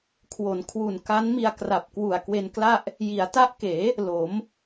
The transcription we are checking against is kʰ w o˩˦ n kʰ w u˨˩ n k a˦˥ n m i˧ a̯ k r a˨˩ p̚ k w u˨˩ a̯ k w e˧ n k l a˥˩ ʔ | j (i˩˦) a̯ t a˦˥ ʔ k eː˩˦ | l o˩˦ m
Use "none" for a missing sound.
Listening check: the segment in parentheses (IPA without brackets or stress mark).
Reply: i˩˦